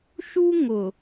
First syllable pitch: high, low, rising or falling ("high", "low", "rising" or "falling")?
high